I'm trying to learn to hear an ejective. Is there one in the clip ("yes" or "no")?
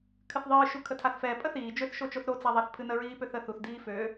yes